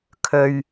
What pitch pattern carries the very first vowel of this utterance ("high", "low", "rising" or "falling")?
low